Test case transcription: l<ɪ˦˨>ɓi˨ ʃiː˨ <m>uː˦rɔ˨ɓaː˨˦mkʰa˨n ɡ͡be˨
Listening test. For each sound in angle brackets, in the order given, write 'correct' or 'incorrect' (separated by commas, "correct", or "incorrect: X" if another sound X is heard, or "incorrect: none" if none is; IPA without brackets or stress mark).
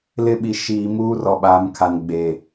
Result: correct, correct